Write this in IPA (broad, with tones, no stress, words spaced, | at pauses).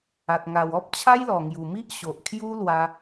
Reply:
a˨t̚ŋa˨˩w ɔ˦p̚t͡ɕʰa˦jlɔ˨˩ ŋju˨˩mi˦ʔ ɕo˨ʔkʰju˦lwa˧